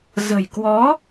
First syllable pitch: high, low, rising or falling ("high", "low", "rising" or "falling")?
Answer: low